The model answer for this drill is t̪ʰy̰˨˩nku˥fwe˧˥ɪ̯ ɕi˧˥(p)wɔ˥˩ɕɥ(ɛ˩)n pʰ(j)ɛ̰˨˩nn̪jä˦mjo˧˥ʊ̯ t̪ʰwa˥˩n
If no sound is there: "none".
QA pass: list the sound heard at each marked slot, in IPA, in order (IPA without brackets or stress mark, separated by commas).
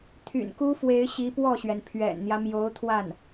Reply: p, ɛ˩, ɥ